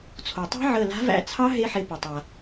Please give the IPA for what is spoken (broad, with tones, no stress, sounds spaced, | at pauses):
t͡sʰ o˩ tˤ a̤˦˥ ʕ əː˧˩ l a̤˨˥ v æ̰˧˩ t͡sʰ ɑ˦˥ ɦ e˦˥ ħ e˨˥ p ə˩ tˤ a˩